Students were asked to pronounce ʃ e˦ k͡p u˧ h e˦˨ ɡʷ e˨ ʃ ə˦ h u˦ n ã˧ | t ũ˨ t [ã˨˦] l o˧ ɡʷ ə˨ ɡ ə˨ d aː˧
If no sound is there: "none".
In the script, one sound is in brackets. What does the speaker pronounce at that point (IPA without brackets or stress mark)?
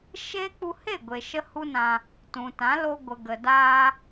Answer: ã˨˦